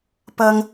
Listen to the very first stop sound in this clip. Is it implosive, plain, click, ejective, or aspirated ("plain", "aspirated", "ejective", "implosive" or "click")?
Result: plain